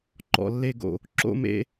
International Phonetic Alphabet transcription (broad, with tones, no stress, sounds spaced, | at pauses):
ǃ ɔ̰˨ lː e˦˨ ɡ o̰˨ | ǁ o̰˦ m ḛ˦